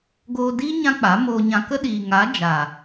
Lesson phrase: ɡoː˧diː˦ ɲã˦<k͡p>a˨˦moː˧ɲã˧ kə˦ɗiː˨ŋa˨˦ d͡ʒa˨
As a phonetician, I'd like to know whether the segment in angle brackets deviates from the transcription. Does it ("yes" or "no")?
no